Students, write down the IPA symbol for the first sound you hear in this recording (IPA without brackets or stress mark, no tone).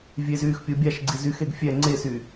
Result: vʲ